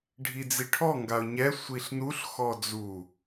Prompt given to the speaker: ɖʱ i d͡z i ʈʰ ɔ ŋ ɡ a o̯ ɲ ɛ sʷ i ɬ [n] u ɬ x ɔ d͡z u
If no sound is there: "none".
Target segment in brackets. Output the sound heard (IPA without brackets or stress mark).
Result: n